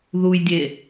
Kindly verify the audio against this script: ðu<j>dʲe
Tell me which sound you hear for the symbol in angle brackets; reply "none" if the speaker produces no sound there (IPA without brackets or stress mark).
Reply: j